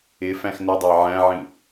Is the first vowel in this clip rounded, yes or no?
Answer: no